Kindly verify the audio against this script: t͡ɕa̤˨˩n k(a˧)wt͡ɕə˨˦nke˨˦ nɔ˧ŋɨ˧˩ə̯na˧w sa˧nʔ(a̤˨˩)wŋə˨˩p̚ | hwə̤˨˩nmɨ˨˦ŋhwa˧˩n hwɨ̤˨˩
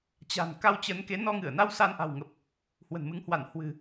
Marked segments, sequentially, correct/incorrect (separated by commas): correct, correct